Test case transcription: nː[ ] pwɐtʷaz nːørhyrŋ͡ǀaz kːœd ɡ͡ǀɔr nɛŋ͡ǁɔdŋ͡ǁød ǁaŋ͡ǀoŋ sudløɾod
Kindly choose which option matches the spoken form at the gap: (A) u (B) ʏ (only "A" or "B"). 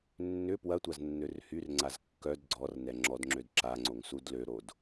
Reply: B